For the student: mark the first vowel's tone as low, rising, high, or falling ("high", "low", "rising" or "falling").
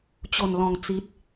low